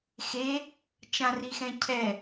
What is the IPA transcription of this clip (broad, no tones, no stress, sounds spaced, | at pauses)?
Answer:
x e | t͡ʃ ã r i x ɛ̃ cʰ ɛ